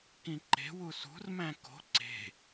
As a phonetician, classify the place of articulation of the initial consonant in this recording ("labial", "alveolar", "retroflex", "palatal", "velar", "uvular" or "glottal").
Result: velar